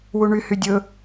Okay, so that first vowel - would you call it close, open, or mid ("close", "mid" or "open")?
close